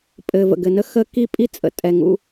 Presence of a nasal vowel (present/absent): absent